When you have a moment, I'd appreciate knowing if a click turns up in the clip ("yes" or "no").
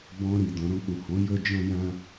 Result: no